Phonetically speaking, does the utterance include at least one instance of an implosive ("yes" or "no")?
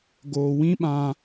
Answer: yes